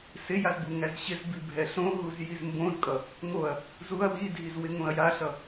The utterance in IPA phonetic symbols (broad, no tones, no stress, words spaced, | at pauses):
sɪjaz buŋæzɕɪzbi bʱɛɬõɦuz jizmbõzkʼʌ | ŋoɐ̯ | zuɐ̯ widʱiz wɪŋõɐ̯jaɬʌ